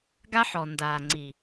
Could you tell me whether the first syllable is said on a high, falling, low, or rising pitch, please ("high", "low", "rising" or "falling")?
high